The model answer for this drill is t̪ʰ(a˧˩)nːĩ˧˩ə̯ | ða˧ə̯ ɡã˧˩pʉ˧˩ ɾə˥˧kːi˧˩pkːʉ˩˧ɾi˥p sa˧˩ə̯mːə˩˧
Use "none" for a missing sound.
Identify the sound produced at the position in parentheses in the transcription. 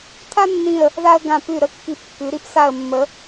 a˥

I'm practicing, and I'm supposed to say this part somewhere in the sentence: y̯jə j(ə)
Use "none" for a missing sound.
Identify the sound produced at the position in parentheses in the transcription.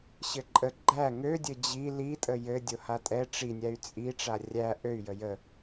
ə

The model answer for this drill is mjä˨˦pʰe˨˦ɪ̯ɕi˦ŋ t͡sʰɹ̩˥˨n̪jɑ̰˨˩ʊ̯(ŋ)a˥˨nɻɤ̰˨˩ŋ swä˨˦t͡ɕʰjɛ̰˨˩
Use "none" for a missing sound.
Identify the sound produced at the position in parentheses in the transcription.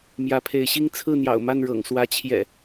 m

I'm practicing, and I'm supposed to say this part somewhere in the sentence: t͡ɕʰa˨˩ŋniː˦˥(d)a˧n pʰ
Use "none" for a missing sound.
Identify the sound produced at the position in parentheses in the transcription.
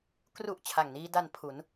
d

